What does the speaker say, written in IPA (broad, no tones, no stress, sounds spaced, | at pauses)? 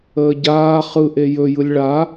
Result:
əː ɟ aː χ ɯ ʔ e j ɵ j ɯ lʲ ɭ a